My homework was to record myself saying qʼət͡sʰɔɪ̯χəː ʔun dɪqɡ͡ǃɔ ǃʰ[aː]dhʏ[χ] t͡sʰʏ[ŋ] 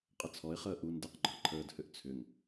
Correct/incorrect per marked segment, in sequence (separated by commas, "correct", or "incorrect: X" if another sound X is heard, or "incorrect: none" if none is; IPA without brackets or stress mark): incorrect: əː, incorrect: ʔ, correct